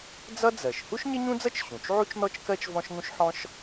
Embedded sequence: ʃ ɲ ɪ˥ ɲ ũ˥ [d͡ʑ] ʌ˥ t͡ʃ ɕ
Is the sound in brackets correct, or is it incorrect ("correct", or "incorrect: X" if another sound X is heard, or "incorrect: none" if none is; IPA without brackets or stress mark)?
incorrect: d͡z